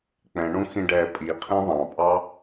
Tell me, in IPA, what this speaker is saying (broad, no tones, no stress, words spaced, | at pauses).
k͡pɛ̃ɳũxĩɖɛː pʼiqʰĩ ðˤɑ̃pʼɑ